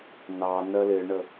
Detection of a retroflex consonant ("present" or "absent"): present